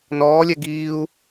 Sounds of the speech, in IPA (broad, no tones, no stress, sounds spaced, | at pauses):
n ɔː lʲ ɛ ɡ iː u̯